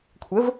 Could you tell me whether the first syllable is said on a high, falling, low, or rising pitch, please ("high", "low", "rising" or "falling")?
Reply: rising